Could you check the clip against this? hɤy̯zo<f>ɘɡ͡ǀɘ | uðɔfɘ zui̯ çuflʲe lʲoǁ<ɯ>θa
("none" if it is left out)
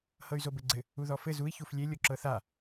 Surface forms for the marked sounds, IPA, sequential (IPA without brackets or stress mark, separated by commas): b, ɤ